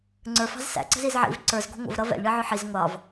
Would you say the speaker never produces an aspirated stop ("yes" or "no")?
yes